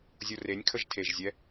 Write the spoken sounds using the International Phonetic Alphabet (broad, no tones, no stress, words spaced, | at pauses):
zʲorenʲkʰəʒ tʰeʒzʲɛ